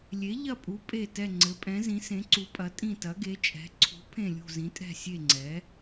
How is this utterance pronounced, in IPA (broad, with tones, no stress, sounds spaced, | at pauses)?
lʲ e˨˥ ʎ ɐ˦˨ pʼ u˨˥ pʼ e˦˨ t ɛ˦˨ ŋ͡ǀ ɘ˨˥ pʼ ɛ̃˨˥ z ĩ˨˥ s ẽ˨˥ ǀ u˨˥ pʼ ɐ˨˥ tʼ ĩ˦˨ t ɐ˨˥ ɡ e˨˥ t͡ʃʼ ɛ̤˨˥ ǀʰ ṳ˨˥ pʰ ẽ˦˨ lʲ ṳ˦˨ z ĩ˨˥ tʼ ɛ̤˦˨ sʲ e˦˨ ŋ͡ǀ ɛ˨˥